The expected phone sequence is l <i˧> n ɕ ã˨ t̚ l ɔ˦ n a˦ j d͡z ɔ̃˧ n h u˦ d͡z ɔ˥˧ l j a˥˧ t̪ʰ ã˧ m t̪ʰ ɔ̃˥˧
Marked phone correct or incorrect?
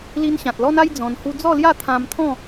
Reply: correct